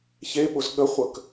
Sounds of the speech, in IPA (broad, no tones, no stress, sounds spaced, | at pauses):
ç e ɓ ʊ z ɠ ə χʷ ə k